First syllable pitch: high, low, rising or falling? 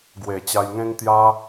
low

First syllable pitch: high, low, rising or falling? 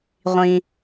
low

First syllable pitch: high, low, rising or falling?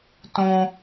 high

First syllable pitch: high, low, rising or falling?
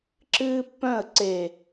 high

